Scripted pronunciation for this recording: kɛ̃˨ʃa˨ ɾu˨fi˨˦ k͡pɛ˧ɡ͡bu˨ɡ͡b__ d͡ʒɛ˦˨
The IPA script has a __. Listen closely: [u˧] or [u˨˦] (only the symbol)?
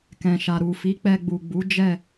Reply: u˨˦